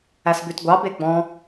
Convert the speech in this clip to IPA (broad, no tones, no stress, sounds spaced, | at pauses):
æ s b ʉ t ɡʷ ɑ b e ɡ͡b ɔ̃